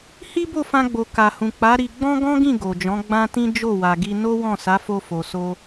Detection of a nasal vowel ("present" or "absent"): present